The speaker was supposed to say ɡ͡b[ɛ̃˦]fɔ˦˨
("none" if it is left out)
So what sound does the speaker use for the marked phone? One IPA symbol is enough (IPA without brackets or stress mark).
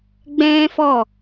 ɛ̃˦